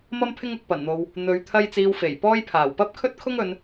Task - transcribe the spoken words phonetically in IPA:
m ɐ˥ m pʰ ɪ˥ ŋ ʊ˨ k̚ p ɐ˨˩ n n̪ o˨ w | n̪ ɵ˨˧ ɥ t̪ʰ ɐ˥ j t͡s iː˧ w f e˨˩ j p ɔː˥ j pʰ aː˨˩ w p ɐ˥ p̚ kʰ ɵ˥ t̚ kʰ ʊ˥ ŋ ɵ˨˧ n

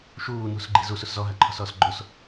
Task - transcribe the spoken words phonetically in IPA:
ʃ uː n ṳ s ɡ͡ǃ i̤ z u s u s z ɔ ɦ a ǃʰ ɔ̤ s ɔː s ɡ͡ǃ o s

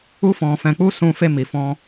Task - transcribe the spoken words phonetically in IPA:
u˦ f ɔ̃˧ f ɛ̃˧ k͡p u˦ s ũ˧ f e˧ m i˨ f ɔ̃˧

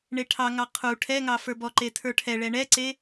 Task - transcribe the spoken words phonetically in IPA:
ɳ e ʈʰ ɑ ŋ ɑ qʰ u ʈʰ ɛ ŋ ɑ f ə˞ b ɔ ǃ e tʰ ə˞ ʈʰ ɛ ɭ ɛ ɳ ɛ ǀ e

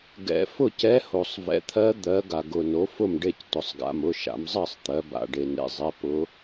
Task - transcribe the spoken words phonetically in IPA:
ɡ ɛ̰˩˧ f ʊ˥˩ c ɛ˧˥ h o˩ sˤ v ɛ̰˩˥ t̪ʰ ɜ˧˥ d̪ ɜ˩˧ ɡ a˩ ɡ ʊ˩ n o˩˥ f ʊ˥˩ m ɖ e˥˩ c t ʊ˩ sˤ ɡ a̰˩˧˩ m ʊ˩˧˩ ʃ a̰˩˧ m zˤ ɜ˥˩ sˤ t̪ ɜ˩˧ b a̰˩ ɖ e˩ n ḛ˩˧˩ zˤ ɛ˩˧˩ p ʊ˧˥

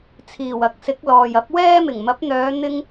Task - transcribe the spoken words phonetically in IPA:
t͡sʰ iː˨˩ w ɐ˨˥ k̚ s ɪ˨˥ k̚ l ɔː˨ j ɐ˨˥ p̚ w ɛː˥ m ɪ˨˩ ŋ m ɐ˨˥ p̚ n̪ œː˨˧ n̪ ɪ˧ ŋ

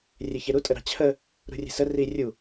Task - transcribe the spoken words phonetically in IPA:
rʲ e ç e ɾ u tʼ ə ɾ ɑ̤ t͡ɕʰ ə | ɾ ṳ rʲ e̤ s ə r i rʲ u

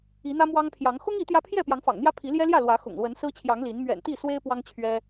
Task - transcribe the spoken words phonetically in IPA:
i˨˦ n̪ ä˦ m w ɑ˦ ŋ pʰ j ɑ˨˦ ŋ x ʊ˦ ŋ i˨˦ t̪ j ä˦ pʰ j ɛ˥˨ p j ɑ˨˦ ŋ f ɑ̰˨˩ ŋ n̪ j ä˦ pʰ i˨˦ l j ɛ˦ l j ä˥˨ l w ä˨˦ x ʊ̰˨˩ ŋ l w ə˨˦ n s ɹ̩˦ t͡ɕʰ j ɑ˨˦ ŋ l i˨˦ n m ɥ ɛ̰˨˩ n t̪ i˥˨ s w e˦ ɪ̯ p w ɑ˦ ŋ t͡ɕʰ ɥ ɛ˦

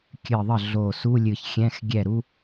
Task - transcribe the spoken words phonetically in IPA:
kʲ ɨ˧˩ ðˤ ə˥˩ ɮ o˧˩ s u˧˥˧ lʲ ɨ˧˩ ç xʲ ɛ̃˧˥˧ x ɡʲ ɛ˥˩ ɾ u˥

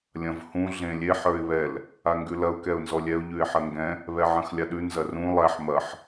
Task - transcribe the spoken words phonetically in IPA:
lʲ ɐ̃ v h ũ ɮ ẽ lʲ e ħ ə˞ ɪ̯ β ɛ l | a ŋ ɡ ʉ l ɐ ʊ̯ k ɛ ʊ̯ n z ɔ lʲ ɛ ʊ̯ ʎ ʉ ɪ̯ ħ ɐ ŋ ɡ ɛ̃ | β ɛ ʕ ɐ̃ x lʲ a ɗ ʉ n z ɐ r ũ lˠ æ ħ m ɐ ħ

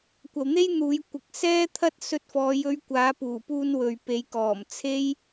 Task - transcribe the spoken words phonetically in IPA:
kʷ ɐ˨ w n̪ e˥ j n̪ uː˨˧ j kʷ ɪ˨˥ k̚ s ɛː˥ t̪ʰ ɐ˥ t̚ s ɵ˧ t̚ f ɔː˨˧ j ɵ˧ ɥ kʷ aː˨˧ p uː˨˩ p uː˧ n w ɵ˨ ɥ p e˨˧ j k ɔː˨˩ m t͡sʰ e˥ j

